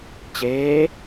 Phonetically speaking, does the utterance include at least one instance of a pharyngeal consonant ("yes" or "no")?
no